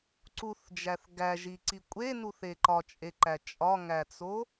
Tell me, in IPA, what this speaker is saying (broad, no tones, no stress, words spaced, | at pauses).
ǀuθd͡ʒæθ ɡæʒiǀi kʷʼenuθe ǃɒt͡ʃʼeǃæ t͡ʃʼɒŋæt͡so